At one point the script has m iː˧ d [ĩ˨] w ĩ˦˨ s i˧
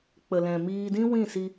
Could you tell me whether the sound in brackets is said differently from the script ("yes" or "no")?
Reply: yes